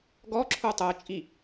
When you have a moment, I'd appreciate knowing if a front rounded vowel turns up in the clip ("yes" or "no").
no